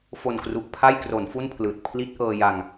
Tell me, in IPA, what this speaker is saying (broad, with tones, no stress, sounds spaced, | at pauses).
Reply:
f o˨˩ n k r u˨˩ ʔ pʰ a˥˩ j k r o˩˦ n f u˥˩ n pʰ l ɯː˨˩ t̚ pʰ l i˦˥ t̚ ʔ ɤː˧ j a˧ ŋ